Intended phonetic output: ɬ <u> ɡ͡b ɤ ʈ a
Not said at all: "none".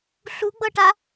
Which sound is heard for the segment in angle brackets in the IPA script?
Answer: u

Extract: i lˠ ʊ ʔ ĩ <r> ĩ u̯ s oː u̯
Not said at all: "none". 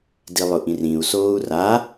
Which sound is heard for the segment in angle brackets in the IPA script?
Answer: r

